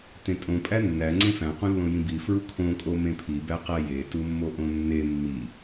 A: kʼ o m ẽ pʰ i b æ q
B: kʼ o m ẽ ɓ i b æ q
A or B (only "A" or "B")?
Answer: A